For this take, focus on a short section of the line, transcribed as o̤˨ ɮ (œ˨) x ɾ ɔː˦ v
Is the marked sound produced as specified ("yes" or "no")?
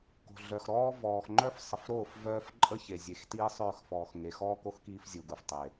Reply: yes